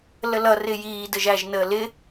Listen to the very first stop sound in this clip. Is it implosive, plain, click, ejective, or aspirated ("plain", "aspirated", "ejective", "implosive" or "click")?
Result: plain